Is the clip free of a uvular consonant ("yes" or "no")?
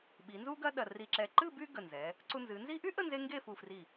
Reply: yes